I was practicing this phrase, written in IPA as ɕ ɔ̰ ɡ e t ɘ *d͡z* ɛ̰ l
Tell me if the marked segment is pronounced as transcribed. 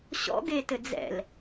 yes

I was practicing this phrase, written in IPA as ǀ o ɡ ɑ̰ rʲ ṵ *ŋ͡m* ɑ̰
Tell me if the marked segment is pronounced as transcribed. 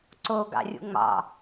yes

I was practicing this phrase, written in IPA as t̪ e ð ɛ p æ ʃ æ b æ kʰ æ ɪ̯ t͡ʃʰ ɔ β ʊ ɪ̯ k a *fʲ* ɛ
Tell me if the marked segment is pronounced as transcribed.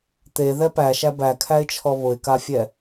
yes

